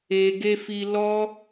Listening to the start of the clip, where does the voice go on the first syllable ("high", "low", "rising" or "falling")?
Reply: low